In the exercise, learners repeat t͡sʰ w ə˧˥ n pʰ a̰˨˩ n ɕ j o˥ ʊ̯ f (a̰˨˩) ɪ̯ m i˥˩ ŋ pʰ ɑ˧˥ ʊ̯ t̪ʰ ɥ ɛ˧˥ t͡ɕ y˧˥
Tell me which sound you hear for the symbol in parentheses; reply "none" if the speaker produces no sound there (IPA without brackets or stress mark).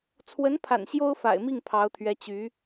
a̰˨˩